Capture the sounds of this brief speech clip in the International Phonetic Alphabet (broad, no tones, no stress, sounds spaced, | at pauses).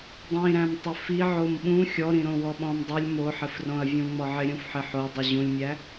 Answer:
dˤ ĩ ɾ æ̃ m tˤ ɪ f i ʕ o m ɓ ũ xʲ ɔ ɾ ĩ ɾ õ w ɔ ɓ ɔ̃ m dˤ y lʲ m o ħ ɪ f r õ ɐ̯ vʲ ũ ŋ͡m ɔ ʕ ɪ ɾʲ ũ f ħ ɪ ħ o dˤ ɯ ʑ ũ lʲ mʲ æ